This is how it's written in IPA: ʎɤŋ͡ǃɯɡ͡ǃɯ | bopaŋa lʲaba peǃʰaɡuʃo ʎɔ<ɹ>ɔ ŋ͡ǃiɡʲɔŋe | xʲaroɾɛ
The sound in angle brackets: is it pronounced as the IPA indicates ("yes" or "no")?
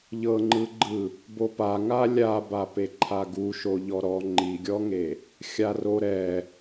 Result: no